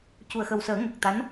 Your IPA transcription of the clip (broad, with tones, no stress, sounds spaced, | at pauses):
c u˨˩ ə̯ x ə˨˩ w s əː˨˩˦ ŋ ə˨˩ k̚ t̪ a˧˥ n